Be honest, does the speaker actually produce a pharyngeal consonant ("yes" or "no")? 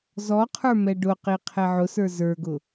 yes